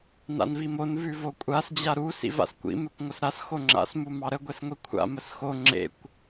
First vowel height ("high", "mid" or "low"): low